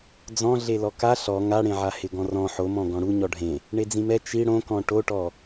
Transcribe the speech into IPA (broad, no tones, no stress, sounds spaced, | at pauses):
d͡z ɔ̃ ɮ e l ɔ k a ɬ ɔ ŋ a ɽ ẽ ʕ a h ɪ ɡ ɔ̃ r ɔ̃ ħ o m ɔ̃ ɡ ɔ̃ ɽ u ɲ ɔ ɖʱ ẽ | ɳ e d͡z ĩ m ɛ t͡ʃ i ɽ õ k ɔ̃ ʈ o ʈ ɔ